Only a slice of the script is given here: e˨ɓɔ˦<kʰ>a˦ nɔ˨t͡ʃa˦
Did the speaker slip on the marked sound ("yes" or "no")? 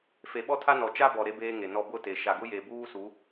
yes